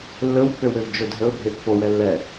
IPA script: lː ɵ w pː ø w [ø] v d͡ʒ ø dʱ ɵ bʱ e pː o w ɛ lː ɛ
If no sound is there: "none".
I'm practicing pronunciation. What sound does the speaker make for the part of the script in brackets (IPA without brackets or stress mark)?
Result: ø